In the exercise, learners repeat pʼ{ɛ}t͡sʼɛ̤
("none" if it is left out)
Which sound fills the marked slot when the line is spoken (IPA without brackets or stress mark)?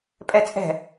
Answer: ɛ